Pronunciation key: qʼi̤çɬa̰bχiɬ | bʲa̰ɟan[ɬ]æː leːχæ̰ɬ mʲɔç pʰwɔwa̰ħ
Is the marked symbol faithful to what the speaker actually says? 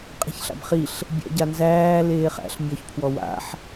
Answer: no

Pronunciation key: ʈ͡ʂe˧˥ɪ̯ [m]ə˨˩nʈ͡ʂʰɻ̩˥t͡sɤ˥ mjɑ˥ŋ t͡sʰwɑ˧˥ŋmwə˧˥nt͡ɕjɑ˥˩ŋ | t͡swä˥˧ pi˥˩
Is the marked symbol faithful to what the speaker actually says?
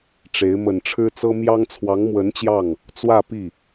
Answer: yes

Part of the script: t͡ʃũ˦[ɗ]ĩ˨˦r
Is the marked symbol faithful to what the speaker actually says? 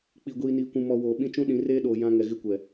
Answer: yes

